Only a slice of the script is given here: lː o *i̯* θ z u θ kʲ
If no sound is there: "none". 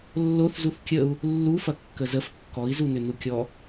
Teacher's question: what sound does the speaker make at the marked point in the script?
none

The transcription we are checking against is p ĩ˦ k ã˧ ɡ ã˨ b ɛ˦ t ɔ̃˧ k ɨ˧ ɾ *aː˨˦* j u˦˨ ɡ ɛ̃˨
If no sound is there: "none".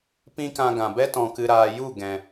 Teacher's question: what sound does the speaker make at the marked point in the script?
aː˧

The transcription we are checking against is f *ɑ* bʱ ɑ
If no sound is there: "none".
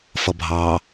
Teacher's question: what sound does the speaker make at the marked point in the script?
ʌ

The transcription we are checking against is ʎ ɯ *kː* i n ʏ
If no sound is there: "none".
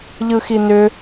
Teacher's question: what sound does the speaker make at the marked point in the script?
x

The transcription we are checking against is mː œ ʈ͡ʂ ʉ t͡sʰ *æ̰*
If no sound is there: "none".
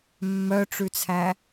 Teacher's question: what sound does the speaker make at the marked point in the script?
æ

